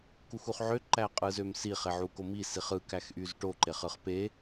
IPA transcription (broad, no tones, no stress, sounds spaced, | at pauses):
k u x u χ ʕ ø ǃ æ qʼ ɯ z ø m s i χ e ʕ u k o m i s i χ ɯ k æ x ʔ y z ʈ o ǃ e χ ɯ χ p e